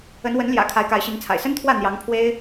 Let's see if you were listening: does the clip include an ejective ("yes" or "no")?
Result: no